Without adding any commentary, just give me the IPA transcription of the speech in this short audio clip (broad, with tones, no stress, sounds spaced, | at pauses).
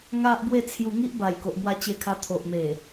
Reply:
ŋ a˦ ʔ b w e˥˧ t͡sʰ j u˧ ŋ i˦ ʔ b a˨˩ j k o˨ ʔ m w a˧ t͡ɕ e˧ kʰ a˧ t̪ʰ o˨ ʔ m e˨˩